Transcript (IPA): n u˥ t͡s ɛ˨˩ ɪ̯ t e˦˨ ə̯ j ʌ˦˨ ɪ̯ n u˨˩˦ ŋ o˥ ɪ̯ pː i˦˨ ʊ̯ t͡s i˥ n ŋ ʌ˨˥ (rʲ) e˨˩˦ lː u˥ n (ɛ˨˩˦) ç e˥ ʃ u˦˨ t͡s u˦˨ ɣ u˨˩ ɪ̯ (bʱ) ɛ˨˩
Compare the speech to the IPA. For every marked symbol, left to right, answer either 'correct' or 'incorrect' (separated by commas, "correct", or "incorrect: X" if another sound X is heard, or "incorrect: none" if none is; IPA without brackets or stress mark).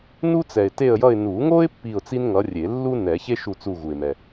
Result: correct, correct, incorrect: m